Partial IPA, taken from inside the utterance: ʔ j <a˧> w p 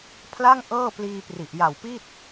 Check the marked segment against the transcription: incorrect: a˨˩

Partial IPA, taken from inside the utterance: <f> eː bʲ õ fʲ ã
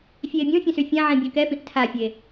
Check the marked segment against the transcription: incorrect: fʲ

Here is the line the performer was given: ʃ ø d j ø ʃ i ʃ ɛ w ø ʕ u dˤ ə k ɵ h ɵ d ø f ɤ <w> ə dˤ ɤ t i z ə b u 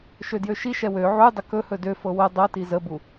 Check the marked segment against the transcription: correct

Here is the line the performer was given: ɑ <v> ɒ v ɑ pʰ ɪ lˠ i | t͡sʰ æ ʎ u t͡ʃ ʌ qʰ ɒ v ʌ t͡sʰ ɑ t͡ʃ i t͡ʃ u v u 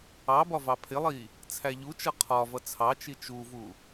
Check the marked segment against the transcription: incorrect: b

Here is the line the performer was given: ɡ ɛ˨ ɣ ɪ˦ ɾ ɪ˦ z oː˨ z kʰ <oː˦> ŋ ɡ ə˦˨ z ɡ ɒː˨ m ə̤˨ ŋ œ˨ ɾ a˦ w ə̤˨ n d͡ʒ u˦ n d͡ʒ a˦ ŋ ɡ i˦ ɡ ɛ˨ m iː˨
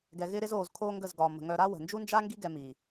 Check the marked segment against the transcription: correct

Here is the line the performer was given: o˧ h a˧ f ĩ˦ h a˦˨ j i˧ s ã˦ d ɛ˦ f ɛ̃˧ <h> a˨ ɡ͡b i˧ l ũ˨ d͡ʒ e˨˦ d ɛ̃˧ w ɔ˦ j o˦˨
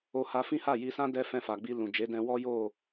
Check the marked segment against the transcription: incorrect: f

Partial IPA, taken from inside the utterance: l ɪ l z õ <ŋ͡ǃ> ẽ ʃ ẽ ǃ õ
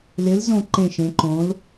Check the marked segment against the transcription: incorrect: ǃ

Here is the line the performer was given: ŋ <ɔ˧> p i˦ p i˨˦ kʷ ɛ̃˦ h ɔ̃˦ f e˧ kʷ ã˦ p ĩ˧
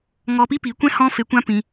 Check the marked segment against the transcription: correct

